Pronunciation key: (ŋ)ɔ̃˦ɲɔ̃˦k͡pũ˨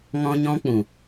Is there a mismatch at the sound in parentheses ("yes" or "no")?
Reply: no